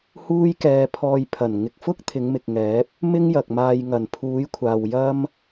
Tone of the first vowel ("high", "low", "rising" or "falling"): high